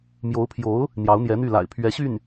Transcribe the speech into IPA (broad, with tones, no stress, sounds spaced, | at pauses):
m j o˧˥ ʊ̯ pʰ j o˧˥ ʊ̯ | n̪ j ɑ˧˥ ʊ̯ n̪ j ɛ˧˥ n̪ y˥˩ l a̰˨˩ ɪ̯ pʰ ɥ ɛ˧˥ ɕ y˥˩ n